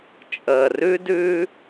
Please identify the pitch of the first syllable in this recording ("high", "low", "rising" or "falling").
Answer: low